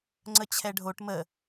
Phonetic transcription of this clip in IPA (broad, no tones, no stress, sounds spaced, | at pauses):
ŋ͡ǀ ə t͡ɕʰ ɛ ɖʱ o ʈ m ə